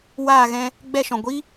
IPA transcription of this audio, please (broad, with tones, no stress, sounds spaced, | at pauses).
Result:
w aː˦˨ ɣ ɛ̃˧ | ɡ͡b ɛ˦˨ ʃ ɔ̃˨ ɡʷ i˦